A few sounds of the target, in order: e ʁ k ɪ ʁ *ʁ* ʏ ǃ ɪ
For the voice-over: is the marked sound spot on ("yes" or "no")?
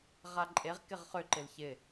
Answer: no